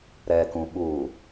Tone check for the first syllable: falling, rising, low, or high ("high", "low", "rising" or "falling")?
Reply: low